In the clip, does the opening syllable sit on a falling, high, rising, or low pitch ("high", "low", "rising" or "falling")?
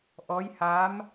rising